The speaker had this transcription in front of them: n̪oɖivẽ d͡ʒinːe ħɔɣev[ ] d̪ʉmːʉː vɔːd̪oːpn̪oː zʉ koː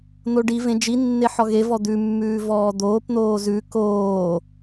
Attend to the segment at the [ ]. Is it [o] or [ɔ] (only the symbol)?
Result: ɔ